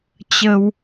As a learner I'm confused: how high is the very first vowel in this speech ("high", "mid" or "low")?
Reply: mid